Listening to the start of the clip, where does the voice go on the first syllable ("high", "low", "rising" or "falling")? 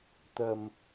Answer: low